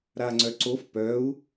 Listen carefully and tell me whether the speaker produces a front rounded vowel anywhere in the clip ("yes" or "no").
yes